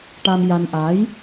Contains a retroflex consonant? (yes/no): yes